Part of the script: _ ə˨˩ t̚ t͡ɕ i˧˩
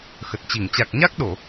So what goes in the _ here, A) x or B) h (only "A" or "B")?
A